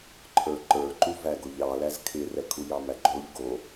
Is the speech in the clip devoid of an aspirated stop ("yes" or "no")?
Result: no